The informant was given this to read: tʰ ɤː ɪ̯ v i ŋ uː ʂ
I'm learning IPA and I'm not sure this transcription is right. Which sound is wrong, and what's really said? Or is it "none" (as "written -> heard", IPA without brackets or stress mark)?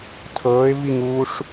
none